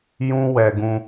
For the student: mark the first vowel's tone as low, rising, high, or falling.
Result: high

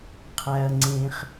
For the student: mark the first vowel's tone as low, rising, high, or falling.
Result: low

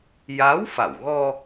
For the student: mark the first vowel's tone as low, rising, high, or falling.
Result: rising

